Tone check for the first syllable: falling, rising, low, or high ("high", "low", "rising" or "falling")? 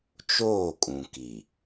falling